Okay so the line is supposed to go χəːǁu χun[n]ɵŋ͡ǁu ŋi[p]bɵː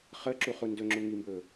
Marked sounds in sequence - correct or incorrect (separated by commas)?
incorrect, incorrect